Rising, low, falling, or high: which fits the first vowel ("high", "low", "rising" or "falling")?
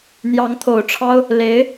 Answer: rising